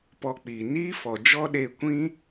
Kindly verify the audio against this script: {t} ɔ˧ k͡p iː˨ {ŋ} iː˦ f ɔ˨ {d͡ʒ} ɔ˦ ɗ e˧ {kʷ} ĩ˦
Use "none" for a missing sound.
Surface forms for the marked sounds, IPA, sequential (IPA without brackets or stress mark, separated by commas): p, n, d͡ʒ, kʷ